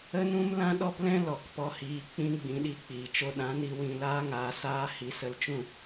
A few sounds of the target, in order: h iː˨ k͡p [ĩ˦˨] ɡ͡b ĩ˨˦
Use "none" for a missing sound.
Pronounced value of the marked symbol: ĩ˧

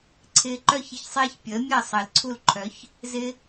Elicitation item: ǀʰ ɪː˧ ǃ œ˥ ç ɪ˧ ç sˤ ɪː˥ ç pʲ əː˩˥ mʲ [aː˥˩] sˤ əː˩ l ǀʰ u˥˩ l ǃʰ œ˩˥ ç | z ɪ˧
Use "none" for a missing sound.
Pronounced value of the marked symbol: əː˥˩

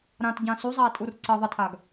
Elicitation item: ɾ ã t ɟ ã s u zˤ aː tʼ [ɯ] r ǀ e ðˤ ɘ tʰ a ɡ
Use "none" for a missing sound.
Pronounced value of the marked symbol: u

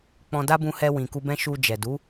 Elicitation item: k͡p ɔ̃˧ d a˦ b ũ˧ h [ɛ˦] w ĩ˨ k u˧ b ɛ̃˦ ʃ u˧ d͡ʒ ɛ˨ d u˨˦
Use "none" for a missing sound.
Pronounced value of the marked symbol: ɛ˧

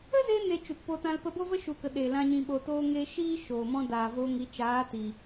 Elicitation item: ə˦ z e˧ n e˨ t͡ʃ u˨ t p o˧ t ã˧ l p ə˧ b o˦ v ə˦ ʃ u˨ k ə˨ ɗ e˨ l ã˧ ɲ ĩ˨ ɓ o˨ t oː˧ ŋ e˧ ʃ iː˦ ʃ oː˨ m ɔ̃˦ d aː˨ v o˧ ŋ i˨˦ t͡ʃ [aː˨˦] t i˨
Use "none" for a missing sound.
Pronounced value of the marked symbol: aː˨˦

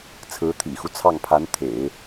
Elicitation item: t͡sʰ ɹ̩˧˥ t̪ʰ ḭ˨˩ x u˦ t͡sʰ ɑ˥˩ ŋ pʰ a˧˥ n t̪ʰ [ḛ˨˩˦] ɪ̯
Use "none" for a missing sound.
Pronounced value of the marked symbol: ḛ˨˩˦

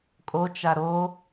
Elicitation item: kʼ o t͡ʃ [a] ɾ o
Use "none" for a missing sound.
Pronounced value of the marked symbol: a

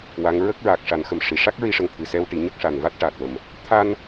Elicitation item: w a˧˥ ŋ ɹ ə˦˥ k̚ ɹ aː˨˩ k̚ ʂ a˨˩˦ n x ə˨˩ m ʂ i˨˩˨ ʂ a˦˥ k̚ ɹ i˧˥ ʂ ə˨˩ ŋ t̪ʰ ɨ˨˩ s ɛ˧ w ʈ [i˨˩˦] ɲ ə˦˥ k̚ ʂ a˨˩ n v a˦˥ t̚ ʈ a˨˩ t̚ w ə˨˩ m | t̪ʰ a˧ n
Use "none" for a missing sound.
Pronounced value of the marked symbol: i˨˩˦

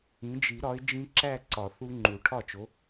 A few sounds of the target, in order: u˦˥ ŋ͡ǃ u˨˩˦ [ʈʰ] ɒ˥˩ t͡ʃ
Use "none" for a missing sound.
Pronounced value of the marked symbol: ʈʰ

